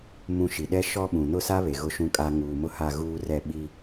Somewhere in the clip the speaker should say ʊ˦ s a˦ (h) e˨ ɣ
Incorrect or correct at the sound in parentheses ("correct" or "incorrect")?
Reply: incorrect